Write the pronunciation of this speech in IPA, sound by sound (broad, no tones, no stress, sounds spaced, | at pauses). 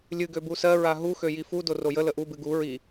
lʲ ɨ ɡ ø b u s ɜ ɹ a ɦ u x ø j i f u d o r o j ə l ə ʔ u b ɨ ɡ u ɹ i